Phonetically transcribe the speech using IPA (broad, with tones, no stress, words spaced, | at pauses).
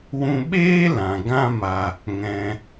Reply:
wũ˧ɓeː˦ lã˨ ɡã˦ma˧ | ŋɛ̃˧